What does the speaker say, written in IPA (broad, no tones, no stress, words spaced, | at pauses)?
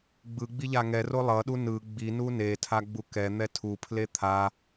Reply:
ɡ͡bɯɡ͡bi ʎaŋɛro lˠʌɗu nɯ ɡ͡binu netʰa ɡ͡bukɛn̪ɛ tʰupʰle t̪ʰa